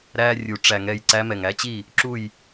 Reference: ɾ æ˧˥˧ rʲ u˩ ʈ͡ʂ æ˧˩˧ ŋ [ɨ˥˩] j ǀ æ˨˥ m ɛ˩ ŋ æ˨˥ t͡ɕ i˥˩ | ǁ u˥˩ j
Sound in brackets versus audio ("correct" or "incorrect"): incorrect